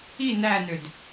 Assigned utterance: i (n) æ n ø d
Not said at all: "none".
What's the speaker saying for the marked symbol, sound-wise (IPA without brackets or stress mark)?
n